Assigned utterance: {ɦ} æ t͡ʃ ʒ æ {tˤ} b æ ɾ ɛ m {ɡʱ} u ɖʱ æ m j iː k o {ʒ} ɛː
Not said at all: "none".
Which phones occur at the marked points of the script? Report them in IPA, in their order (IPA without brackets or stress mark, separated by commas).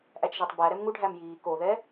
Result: ʔ, tˤ, ŋ, ð